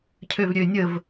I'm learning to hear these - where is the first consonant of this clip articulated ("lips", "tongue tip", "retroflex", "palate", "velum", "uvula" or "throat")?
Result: palate